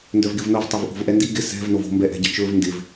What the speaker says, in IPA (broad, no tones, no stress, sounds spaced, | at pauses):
n d œ v ɡ ɪ v n o v tˤ o v ʔ o̤ v ʔ ɛ n d i ɡ ɪ s ɛ̤ v n o v o̤ m b ɛ ʔ ɛ̤ ɟ ɪ t͡ʃ ɵ v n d ɪ v